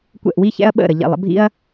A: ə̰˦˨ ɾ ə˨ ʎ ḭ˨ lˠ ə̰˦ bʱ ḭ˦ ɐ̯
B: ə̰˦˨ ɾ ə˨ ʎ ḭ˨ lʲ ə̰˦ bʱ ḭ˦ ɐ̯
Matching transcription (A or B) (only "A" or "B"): A